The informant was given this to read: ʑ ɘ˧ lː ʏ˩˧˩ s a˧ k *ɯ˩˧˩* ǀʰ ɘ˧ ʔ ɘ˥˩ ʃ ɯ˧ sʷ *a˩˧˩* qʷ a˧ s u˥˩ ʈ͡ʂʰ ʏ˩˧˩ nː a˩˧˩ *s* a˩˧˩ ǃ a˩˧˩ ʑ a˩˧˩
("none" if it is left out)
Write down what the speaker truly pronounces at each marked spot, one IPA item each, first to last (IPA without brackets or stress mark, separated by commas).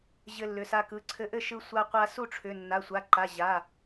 ɯ˩˧˩, a˧, sʷ